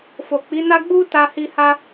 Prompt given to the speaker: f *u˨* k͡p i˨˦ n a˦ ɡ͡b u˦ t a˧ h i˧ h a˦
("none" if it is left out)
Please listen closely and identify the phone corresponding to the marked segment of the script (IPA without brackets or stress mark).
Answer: o˨